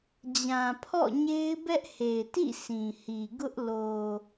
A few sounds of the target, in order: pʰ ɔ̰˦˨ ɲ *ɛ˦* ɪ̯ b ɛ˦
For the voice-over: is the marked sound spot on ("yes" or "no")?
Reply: no